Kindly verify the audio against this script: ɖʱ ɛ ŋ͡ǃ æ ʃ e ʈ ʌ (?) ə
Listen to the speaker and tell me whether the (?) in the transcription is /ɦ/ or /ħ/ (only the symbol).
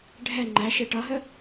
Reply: ɦ